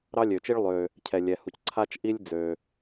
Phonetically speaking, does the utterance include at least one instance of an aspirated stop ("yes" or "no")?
yes